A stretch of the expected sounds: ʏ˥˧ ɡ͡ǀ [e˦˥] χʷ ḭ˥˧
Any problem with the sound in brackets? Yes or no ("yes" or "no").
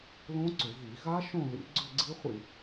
yes